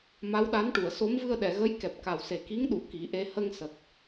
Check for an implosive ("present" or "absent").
present